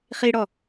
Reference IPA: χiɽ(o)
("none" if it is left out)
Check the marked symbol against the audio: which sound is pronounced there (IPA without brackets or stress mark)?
ɔ